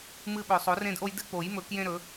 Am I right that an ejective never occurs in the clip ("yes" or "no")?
yes